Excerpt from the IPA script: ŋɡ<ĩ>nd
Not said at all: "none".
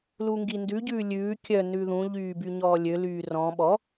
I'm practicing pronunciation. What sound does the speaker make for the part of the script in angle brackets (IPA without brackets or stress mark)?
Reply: i